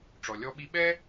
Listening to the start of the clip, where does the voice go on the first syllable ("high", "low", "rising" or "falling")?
low